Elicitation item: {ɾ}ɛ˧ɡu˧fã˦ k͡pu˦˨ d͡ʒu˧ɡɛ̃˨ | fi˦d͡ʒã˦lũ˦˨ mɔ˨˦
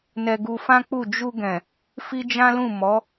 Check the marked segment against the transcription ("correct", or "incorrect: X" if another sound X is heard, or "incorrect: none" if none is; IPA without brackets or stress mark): incorrect: n